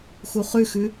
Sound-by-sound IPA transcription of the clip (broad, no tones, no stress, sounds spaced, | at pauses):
x u χ ʉ x ʉ